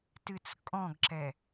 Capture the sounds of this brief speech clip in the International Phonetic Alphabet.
t ɨ t͡s kʼ ɔ̃ ɡ ǁ ɛ

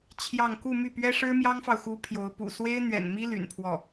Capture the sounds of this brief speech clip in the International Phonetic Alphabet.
t͡ɕʰ j ɑ˥˧ ŋ k u˥˧ m y˥˩ p ɥ ɛ˥ ʂ ɻ̩˥ m j ɑ˥ ŋ f ɑ˨ ʊ̯ x u˧˥ pʰ j o˧˥ ʊ̯ p ṵ˨˩ s w e˥ ɪ̯ n̪ ɥ ɛ̰˨˩ n m i˥ l y̰˨˩ n pʰ w ɔ˥˩

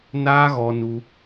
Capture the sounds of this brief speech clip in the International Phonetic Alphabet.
n aː˦ ɣ ɔ˧ n u˧

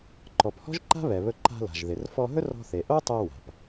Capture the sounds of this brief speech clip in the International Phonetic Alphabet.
ǃ ɔ˩ p h ɔ̤˥ ʒ ǃ a̤˥ β ɛ˩ β ɵ˧ ǃ a̤˧ l a̤˩ ʒ ð ɪ˩ r f ɔ˧ ɦ ɵ˥ r ɔ̤˧ θ e˩ ʔ o˥ tˤ ɛ˧ w a̤˩ p

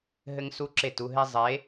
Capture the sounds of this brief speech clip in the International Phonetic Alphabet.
ɦ ɘ˦ ŋ s u˦ ǁ e˦˨ t u˧ ɦ e˦ zˤ e˨˦

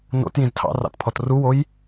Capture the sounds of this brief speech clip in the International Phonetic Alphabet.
n o̰ t j ĩ z tʰ ɑ̰ r ɑ̰ t pʰ ɔ t r u w o j

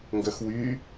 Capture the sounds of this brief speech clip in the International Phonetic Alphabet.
ŋ ɡ œ x w y

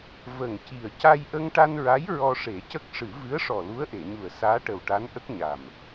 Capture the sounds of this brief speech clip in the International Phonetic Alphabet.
v ə˨˩ ŋ c i˨˩ ə̯ c a˧ j ʔ ə˧ ŋ ʈ a˧ n ɹ a˧˥ j ɹ ɔ˧ ʂ e˨˩˦ c ə˦˥ k̚ ʂ ɨ˨˩˦ v ɨ˧˥ ə̯ ʂ ɔ˨˩ l u˧˥ ə̯ ʔ e˨˩˨ ɲ u˨˩ ə̯ s aː˧˥ ʈ ə˨˩ w ʈ a˧˥ n ʔ ə˦˥ k̚ ɲ a˨˩ m

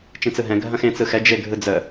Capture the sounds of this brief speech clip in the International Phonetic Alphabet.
t͡ʃ ĩ t͡s ɯ ɦ ɛ̃ ɡʱ ɐ̃ x ẽ t͡s ɯ x ɛ d͡ʒ e ɡʱ ɯ d͡z ə

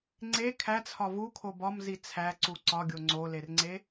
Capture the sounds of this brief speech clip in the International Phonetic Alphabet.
ŋ͡ǀ e kʰ æ t͡sʰ ɒ v u kʰ o b ɒ m z i t͡sʰ æ ǀ u ǀ ɒ ɡʲ o ŋ͡ǀ o l e r ŋ͡ǀ e

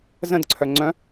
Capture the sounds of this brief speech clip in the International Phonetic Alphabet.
z ə̃ d ǀʰ œ ŋ͡ǀ œ̃

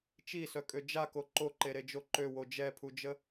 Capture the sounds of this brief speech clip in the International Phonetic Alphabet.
t͡ʃ i s œ kʼ ø d͡ʒ a k o ǃ o ǃ e ɾ e d͡ʒ o ǃ ø w o d͡ʒ ɛ pʰ u d͡ʒ ə

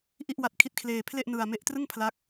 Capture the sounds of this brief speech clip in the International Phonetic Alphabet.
ʔ i˥˩ ʔ w a˦˥ t̚ kʰ i˦˥ t̚ kʰ l eː˧ pʰ l e˥˩ ʔ n ɯ˧ a̯ m e˦˥ ʔ t r ɯ˥˩ ŋ pʰ l a˦˥ k̚

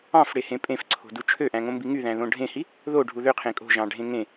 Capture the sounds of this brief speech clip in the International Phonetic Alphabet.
ɑ̃ f ɽ e h ẽ pʼ ẽ f ǀʰ o̤ d u t͡ʃʰ ø ʔ æ̃ ŋ õ m b i ŋ y ð æ̃ ð õ ɖʱ ẽ h i | ð o ɖʱ u ð ø qʰ ẽ kʼ o̤ ʒ ɑ̃ ɖʱ ẽ ŋ ẽ

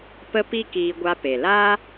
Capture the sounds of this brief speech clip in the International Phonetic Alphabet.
p ə˦ p i˦ k iː˧ ɡʷ a˧ p e˨ l a˦

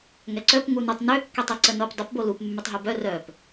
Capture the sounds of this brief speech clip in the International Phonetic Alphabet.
ŋ ɛ ǀ œ p ŋ u n u tˤ n ø kː ø tˤ i ǀ ə n o p dˤ ə p b o l u p mː y tˤ ɦ u b œ r œ p

